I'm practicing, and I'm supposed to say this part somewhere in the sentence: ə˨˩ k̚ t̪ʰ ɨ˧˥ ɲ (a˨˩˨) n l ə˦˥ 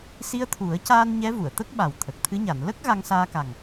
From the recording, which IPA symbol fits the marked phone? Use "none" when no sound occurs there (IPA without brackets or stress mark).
a˨˩˨